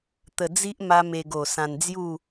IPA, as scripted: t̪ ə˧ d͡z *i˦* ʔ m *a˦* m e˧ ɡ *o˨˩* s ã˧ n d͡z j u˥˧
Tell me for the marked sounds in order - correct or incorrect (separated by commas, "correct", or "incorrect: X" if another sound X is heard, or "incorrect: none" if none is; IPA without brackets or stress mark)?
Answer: correct, correct, correct